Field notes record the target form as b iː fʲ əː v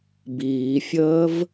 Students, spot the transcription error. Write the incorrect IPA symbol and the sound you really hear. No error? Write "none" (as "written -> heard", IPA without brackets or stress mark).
none